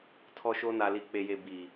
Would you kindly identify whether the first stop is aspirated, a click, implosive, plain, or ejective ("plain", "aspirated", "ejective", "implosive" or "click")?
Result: aspirated